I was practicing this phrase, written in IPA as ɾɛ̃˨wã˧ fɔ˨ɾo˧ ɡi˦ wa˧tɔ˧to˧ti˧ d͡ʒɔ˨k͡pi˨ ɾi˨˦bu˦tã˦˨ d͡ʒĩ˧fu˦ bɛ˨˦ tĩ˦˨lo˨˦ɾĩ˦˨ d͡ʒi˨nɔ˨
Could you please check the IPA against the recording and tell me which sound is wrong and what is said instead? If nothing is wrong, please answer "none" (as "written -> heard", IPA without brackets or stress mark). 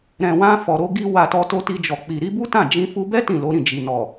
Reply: ɛ˨˦ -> ɛ˦